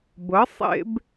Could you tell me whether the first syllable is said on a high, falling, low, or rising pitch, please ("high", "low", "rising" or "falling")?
rising